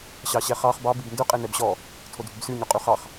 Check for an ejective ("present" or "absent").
present